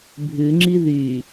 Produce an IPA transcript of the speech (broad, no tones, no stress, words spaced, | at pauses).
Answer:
bʱʉŋ͡ǁi ðy